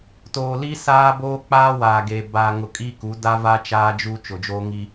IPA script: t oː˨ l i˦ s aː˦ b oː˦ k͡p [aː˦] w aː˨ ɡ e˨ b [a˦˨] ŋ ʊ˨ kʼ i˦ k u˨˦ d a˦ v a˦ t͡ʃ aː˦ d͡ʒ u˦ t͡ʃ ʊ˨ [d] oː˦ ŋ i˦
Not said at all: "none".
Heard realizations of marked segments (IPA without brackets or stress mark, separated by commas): aː˦, a˨, d͡ʒ